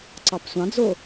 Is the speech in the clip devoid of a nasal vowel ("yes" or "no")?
no